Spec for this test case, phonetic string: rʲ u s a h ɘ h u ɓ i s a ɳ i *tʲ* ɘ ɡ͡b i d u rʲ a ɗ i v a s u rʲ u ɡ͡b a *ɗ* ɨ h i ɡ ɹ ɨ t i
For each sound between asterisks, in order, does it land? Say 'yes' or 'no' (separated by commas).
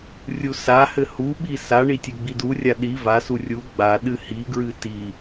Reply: yes, yes